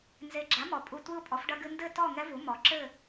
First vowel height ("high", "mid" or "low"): mid